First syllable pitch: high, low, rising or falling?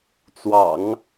low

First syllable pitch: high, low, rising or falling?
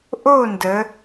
falling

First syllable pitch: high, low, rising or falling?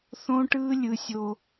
high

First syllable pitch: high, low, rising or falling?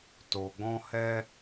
low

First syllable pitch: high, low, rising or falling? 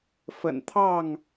low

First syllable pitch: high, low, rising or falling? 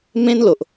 high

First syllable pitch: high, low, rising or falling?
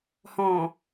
low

